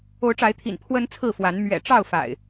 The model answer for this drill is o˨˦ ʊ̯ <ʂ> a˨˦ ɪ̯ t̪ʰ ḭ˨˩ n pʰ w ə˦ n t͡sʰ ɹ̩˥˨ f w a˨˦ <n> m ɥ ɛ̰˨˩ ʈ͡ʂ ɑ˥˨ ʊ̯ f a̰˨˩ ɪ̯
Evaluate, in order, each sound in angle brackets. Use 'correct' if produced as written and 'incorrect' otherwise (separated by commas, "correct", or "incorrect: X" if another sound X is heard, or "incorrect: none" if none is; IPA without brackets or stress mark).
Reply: incorrect: ʈ͡ʂ, correct